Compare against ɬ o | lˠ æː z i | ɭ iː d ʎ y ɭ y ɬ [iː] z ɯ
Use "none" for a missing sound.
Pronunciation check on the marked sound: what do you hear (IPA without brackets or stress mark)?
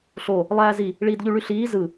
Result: iː